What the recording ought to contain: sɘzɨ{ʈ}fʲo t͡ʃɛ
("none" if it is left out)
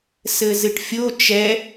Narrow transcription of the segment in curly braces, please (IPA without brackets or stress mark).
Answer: ʈ